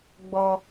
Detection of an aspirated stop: absent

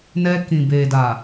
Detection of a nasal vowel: present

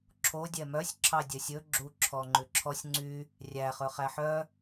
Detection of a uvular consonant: present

